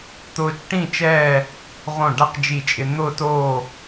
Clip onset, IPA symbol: t̪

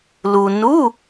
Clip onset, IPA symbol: l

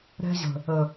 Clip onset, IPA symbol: ɾ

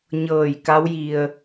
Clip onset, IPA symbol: ɲ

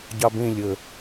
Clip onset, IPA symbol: ɟ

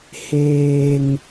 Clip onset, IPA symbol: h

